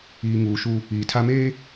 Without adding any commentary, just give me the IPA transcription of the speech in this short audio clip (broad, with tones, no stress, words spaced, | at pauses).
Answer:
iː˨ŋuː˨ ʃu˦ | iː˨tʰa˦meː˦